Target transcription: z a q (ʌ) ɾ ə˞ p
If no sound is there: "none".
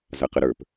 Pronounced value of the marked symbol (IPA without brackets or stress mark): ə